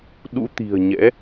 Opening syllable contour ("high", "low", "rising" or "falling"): rising